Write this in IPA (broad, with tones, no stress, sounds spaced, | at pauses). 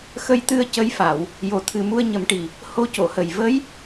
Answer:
x ə˧ j t̪ ɨ˧ ə̯ c ə˧ j f a˨˩˨ w | j o˨˩ t̪ʰ ɨ˨˩ m u˧ ə̯ ɲ ə˨˩˦ m ʈ i˨˩ | h o˧ c o˨˩˨ h ə˨˩ j v ə˧˥ j